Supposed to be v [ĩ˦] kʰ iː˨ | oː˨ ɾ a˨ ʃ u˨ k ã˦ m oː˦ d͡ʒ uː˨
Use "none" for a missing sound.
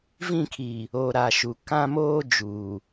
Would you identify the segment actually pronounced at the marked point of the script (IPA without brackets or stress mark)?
ĩ˦˨